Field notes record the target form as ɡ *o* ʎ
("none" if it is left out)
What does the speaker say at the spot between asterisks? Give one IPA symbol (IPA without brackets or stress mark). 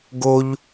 o